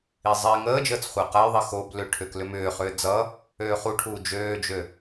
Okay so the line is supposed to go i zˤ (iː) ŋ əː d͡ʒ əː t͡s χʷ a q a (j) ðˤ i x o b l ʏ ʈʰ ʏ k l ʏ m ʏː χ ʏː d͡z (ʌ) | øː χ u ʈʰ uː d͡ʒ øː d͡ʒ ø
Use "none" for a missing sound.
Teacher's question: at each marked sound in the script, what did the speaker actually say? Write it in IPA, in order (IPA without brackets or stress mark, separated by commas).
iː, j, ʌ